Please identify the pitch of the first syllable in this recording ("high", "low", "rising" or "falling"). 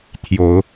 low